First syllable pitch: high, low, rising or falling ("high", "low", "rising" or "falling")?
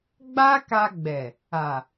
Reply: high